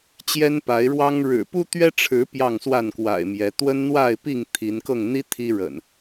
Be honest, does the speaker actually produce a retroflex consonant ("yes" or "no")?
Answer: yes